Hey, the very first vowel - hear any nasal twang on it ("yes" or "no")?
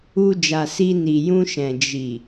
no